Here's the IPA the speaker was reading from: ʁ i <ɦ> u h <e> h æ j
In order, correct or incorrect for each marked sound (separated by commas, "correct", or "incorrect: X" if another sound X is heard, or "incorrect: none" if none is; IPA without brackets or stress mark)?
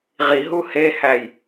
correct, correct